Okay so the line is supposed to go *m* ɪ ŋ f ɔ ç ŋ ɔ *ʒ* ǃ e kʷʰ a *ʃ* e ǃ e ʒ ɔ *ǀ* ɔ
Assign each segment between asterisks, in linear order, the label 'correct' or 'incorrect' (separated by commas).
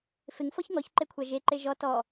incorrect, incorrect, incorrect, incorrect